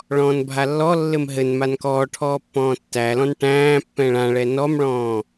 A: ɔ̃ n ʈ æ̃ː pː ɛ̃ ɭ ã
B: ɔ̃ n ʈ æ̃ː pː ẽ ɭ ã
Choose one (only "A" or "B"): A